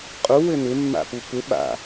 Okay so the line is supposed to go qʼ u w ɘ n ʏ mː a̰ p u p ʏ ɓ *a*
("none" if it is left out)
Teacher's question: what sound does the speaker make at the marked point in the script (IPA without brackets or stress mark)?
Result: a̰